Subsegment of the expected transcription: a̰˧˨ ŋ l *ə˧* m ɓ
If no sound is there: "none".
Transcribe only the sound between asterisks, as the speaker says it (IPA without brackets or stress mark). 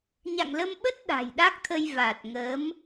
ə˧